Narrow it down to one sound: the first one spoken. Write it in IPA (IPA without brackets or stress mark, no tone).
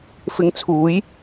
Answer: f